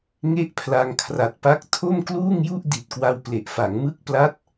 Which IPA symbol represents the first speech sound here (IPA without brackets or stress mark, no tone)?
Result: ŋ